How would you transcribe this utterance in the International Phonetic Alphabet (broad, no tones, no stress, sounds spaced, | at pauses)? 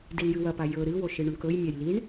d i l j ɨ w ɐ p a j ɵ ɾ ɨ w o ʃ ɨ ɳ u ɳ k ɵ j mʲ a j l i ɳ